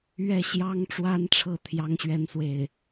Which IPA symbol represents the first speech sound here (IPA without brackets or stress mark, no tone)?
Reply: ɥ